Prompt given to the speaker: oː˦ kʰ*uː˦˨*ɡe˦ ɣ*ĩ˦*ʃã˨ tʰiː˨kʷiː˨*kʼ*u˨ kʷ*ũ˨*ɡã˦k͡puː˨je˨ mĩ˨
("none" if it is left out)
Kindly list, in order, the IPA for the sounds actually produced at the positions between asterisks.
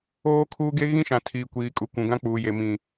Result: uː˦, ĩ˦, kʼ, ũ˨

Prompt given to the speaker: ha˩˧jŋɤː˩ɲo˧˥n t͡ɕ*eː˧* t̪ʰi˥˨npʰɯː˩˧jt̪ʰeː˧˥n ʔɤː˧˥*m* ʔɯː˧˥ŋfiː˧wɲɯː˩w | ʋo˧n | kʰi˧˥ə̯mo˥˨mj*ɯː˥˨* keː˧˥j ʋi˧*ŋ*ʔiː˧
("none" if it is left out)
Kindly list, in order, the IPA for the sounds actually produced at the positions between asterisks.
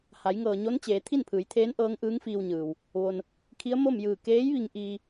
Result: eː˩˧, ŋ, ɯː˧˩, ŋ

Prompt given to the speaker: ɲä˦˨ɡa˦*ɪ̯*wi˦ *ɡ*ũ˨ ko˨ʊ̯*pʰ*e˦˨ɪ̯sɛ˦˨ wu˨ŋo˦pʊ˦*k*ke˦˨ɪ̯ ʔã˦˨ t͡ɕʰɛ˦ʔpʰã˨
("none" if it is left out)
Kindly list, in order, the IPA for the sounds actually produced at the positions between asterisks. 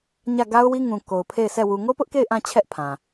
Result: ʊ̯, ŋ, pʰ, ʔ

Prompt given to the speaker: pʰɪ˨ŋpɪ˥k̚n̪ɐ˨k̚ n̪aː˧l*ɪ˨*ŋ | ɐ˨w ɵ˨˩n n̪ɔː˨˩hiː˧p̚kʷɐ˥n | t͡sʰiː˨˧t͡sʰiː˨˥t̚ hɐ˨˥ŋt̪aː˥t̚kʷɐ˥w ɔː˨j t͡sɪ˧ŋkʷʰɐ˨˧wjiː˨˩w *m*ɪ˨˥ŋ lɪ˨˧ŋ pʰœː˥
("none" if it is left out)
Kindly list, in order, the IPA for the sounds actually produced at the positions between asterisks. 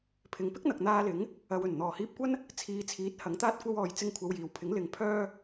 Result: ɪ˨˥, pʰ

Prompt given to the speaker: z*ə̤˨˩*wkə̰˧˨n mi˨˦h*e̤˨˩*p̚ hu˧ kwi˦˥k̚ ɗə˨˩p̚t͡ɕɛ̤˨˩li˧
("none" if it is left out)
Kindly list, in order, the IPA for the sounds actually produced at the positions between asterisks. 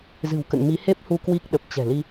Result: ɨ̤˨˩, e˦˥

